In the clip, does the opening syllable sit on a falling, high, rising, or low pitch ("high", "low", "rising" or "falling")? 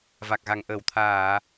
low